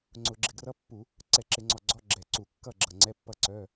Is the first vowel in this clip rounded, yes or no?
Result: yes